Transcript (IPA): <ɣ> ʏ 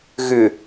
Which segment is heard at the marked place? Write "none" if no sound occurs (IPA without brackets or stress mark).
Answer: ɣ